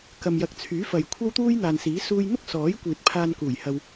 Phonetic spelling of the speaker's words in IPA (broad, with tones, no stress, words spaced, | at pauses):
kɐ˨mjɐ˨˥k̚ t͡sʰyː˨˥fɐ˨j kʷʰɐ˥wt̪uː˥jn̪aː˨nsiː˨˥ suː˧jn̪ʊ˥k̚sɔː˨˥j kʷiː˨t̚pʰaː˧nkuː˨˩jhɐ˧w